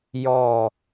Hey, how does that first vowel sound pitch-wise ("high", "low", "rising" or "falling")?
falling